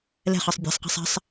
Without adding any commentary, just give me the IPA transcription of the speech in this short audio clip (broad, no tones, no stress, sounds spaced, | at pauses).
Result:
l ɛ̤ χ ɑ sˤ bʲ ɛ̤ sˤ q e̤ sˤ ɛ̤ sˤ